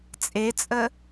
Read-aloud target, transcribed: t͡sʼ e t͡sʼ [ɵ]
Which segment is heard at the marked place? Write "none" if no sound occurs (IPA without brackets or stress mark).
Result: ə